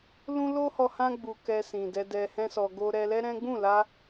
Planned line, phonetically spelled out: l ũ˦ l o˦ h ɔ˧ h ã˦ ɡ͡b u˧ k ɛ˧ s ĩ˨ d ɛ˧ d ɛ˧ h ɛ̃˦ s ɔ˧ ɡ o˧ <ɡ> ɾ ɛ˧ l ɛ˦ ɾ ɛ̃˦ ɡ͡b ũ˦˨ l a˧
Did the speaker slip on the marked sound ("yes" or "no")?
yes